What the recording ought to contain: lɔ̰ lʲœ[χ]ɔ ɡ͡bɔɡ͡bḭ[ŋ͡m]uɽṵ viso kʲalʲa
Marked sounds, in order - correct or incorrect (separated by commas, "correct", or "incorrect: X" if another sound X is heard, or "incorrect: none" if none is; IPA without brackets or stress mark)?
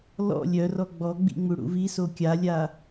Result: incorrect: r, correct